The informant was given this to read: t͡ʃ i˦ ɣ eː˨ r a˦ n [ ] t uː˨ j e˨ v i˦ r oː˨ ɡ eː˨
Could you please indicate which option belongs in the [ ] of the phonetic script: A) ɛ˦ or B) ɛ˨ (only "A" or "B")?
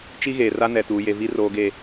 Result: B